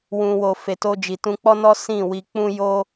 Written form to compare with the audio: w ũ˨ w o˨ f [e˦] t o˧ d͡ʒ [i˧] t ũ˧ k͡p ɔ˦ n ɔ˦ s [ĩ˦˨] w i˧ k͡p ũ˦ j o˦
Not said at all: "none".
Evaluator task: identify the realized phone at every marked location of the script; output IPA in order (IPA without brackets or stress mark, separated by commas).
e˨, i˨, ĩ˦˨